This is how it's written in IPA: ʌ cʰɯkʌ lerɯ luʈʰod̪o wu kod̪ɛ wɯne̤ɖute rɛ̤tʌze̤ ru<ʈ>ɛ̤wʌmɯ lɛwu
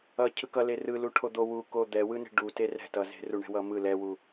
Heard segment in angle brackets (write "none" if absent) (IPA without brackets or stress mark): ɳ